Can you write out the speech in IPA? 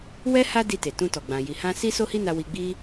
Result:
w ɛ˦ h a˦ d i˧ t e˨ t ũ˧ t ɔ˨ ɡ͡b ã˨ j i˨ h ã˧ s i˦ s o˦ h i˦ n a˧ w i˧ ɡ͡b i˦

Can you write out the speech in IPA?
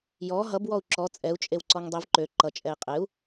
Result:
j ɔ ɦ ʌ b w ɔ u̯ ǁ ɔ t͡sʼ ɛ u̯ t͡ʃʼ e w ǀ ɔ ŋ dˤ i v ǃ ø ǃ ʌ t͡ʃʼ ɛ i̯ qʼ e u̯

